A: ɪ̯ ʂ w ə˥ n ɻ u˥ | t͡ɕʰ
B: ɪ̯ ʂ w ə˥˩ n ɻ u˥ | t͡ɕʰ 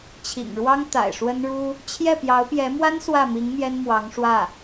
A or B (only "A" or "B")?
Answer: A